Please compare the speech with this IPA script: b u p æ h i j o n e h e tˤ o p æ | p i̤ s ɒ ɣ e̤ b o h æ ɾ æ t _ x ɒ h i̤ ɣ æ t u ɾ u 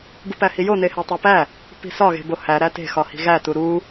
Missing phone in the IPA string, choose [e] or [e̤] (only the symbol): e̤